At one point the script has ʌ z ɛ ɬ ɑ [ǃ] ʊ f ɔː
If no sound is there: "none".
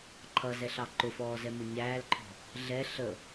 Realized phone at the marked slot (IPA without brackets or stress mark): ǃ